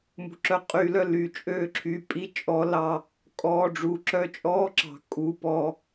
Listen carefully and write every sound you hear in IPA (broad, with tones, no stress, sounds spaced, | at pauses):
m ṳ˨ ǁ œ˧ qʼ yː˧ l œ˧ l y˨ t͡ʃʼ øː˦˨ ǁʰ y˧ pʼ i˦ t͡ʃʼ ɔ˦ l ɑ˦˨ | kʼ ɔː˧ ɖ͡ʐ uː˨ ǁ œ˦ t͡ʃʼ ɔː˦ ǁ ɑ̤˨ kʼ uː˧ p ɔː˧